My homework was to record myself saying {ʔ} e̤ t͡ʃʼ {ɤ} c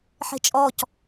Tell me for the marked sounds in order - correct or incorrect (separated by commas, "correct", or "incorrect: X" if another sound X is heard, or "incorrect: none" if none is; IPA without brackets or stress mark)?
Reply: incorrect: ħ, incorrect: ɔ